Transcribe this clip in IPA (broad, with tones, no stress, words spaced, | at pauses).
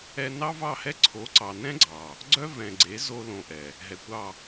ɛ˧nɑ˦ vɑ˦˨hɛ˦ ǀʰo˨˦ǀɑ˨ nɛ̃˦ɡ͡ǀɑ˨ | ɡ͡ǀœ˦vɛ̃˨ɡ͡ǀe˨˦ zo˧ lõ˧ʔɛ˨ | ɦɛ˨kʷɑ˦˨